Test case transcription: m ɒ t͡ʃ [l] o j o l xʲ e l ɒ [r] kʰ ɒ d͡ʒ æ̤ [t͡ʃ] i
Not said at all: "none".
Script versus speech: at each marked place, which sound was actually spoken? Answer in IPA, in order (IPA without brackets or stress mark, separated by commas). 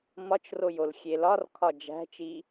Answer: r, r, t͡ʃ